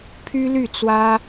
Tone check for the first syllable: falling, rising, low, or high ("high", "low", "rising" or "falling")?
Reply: high